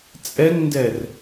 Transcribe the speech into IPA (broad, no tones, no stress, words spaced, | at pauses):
t͡sʼɛŋndɛr